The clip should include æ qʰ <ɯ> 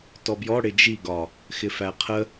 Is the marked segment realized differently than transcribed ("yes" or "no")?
yes